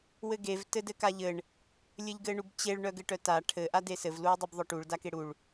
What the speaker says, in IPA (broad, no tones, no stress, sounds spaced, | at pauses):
w ɘ ɡ e v t ɘ d ɘ k a ʎ ɘ ɳ | lʲ ɘ ʎ ɡ ɘ ɳ u b t͡ɕ e ɭ ɳ œ ɡ ɘ ʈ œ t a ʈʰ ɘ ʔ a d e s ɘ v l u e̯ dˤ u b ðˤ œ ʈ u ɭ d a k e ɽ u ɭ